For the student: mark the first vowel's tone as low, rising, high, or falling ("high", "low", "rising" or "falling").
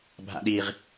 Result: low